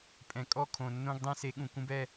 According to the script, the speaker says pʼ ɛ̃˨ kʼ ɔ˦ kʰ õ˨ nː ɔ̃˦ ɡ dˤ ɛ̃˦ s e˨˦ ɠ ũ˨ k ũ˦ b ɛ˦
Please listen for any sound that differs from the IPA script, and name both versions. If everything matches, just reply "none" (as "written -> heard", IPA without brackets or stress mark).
ɔ̃˦ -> õ˦